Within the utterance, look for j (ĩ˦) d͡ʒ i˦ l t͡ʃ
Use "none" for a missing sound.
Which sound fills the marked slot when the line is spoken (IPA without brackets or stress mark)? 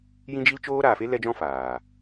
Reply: ĩ˦